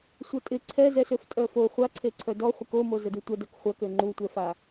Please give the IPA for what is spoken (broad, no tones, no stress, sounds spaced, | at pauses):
sʷ œ tʼ ɪ ǀʰ ɛ z ɛ s ø f tʼ œ f o χʷ a ǀʰ e ǀʰ œ d ɔ χʷ ə k o m o z ə d u tʷ ɐ d œ k χʷ ɐ k ø ŋ͡ǃ u tʷ ɛ f a